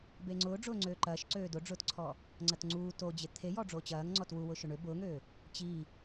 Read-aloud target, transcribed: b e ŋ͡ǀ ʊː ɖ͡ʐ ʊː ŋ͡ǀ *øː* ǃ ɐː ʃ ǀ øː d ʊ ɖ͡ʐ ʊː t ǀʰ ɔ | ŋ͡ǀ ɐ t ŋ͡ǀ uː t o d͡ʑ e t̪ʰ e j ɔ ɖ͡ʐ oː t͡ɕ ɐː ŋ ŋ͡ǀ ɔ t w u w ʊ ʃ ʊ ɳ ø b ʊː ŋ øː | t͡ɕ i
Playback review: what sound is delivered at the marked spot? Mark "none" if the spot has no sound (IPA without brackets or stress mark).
øː